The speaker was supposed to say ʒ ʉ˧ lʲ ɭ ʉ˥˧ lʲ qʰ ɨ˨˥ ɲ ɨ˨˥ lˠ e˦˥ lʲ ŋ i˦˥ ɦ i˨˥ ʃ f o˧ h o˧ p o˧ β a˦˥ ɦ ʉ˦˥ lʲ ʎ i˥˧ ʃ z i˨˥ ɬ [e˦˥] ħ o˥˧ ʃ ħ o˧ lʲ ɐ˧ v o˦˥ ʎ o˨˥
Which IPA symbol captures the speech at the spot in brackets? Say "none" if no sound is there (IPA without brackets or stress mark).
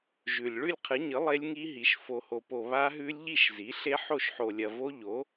e˦˥